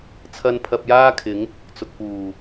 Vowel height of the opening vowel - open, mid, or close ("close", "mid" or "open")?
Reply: open